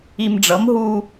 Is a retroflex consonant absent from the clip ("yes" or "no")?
no